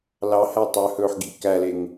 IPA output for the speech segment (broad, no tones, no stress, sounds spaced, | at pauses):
l ɑ h æ tˤ œ h ɵː ħ ɡ ḭ k æ l e ŋ